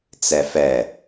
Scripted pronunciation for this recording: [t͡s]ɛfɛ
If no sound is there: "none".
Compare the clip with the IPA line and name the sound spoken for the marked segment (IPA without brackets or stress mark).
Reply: t͡s